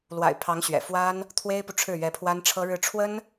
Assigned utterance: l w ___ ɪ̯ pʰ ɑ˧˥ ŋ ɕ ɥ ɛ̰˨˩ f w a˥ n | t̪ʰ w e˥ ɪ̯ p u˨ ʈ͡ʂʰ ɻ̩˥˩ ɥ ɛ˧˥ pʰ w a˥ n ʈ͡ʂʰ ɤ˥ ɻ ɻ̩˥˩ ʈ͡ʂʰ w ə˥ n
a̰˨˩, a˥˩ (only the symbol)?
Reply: a̰˨˩